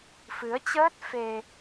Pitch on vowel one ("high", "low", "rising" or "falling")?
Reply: rising